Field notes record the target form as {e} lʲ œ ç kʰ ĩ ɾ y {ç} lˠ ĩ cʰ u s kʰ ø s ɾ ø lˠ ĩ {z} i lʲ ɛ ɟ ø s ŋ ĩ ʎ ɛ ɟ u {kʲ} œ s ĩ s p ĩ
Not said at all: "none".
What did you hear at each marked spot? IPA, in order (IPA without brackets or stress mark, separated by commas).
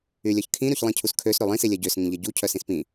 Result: y, ç, s, cʰ